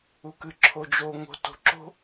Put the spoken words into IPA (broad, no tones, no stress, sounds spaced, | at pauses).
u k ɨ ǁʰ o d͡ʒ o ŋ o̤ t o̤ ǁ o̤